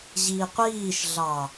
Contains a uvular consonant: yes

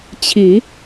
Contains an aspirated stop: yes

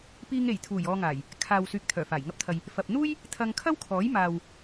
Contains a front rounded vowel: yes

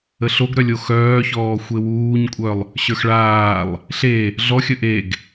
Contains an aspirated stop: no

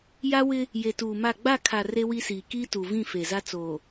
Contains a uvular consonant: no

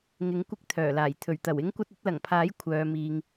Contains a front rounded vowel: yes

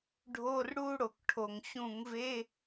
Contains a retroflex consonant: yes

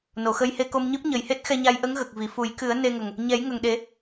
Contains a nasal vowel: no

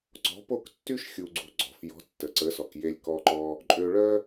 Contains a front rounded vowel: yes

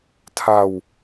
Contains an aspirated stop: yes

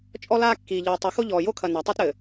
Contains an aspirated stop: yes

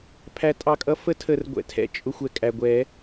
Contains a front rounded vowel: no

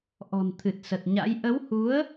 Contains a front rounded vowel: no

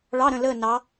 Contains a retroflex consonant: yes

